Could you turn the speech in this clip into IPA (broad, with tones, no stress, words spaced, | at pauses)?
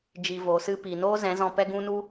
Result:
d͡ʒi˧vo˨˦sɨ˦ pi˨noː˦zɛ̃˨˦zɔ̃˧ pɛ˦ɡũ˦nu˦